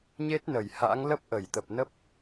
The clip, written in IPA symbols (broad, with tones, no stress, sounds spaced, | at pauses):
ɲ e˦˥ t̚ n ə˧˩ j h a̰˧˥ ŋ l ə˦˥ p̚ ʔ ə˧˩ j t̪ ə˨˩ p̚ n ə˦˥ p̚